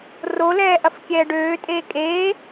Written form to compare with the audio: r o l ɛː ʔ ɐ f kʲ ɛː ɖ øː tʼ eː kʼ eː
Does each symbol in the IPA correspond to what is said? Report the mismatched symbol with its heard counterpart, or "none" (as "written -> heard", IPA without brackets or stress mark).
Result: none